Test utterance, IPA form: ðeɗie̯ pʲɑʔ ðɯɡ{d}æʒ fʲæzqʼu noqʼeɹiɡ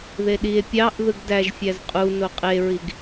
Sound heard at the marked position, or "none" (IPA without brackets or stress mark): d